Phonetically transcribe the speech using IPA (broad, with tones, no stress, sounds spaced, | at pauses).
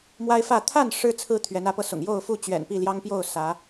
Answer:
m w a˦ ɪ̯ f ä˥˨ t̪ʰ a˥˨ n ʂ ɻ̩˦ t͡sʰ ɹ̩˦ t̪ʰ ɥ ɛ˨˦ n ä˨˦ p ɤ˧ s ʊ̰˨˩ ŋ j o˥˨ ʊ̯ f u˥˨ t͡ɕ ɥ ɛ̰˨˩ n p i˥˨ l j ɑ˦ ŋ p j o˥˨ ʊ̯ s ä˨˦